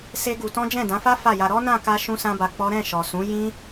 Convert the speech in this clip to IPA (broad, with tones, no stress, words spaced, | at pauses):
se˦ɡu˧tɔ̃˦ d͡ʒɛ̃˦˨dã˨˦fa˦ fa˦˨ja˧ ɾɔ˦nã˦˨ ka˧ ʃũ˦sã˦ba˧ k͡pɔ˦ ɾɛ̃˦˨ʃɔ˨sũ˨˦ jĩ˦